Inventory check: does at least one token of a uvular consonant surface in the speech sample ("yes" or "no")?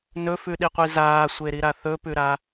yes